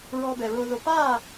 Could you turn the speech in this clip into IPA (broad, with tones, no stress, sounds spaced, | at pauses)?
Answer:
ɹ ɔː˧ b ɛ˩ ɹ oː˧ ð o˧ p aː˥˨